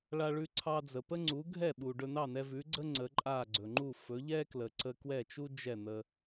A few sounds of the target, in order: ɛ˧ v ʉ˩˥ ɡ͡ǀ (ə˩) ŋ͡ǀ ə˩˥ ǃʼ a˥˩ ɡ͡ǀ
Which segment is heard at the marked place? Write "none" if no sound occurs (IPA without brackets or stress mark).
ə˥